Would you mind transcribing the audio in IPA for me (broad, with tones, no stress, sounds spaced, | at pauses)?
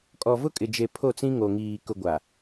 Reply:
kʼ ɔ˨ v ʊ˦ kʼ ɪ˨ d͡ʒ e˨ pʰ o˦˨ t͡s ĩ˦ ŋ o˨ ŋ iː˨ k ʊ˨ ɡʷ a˨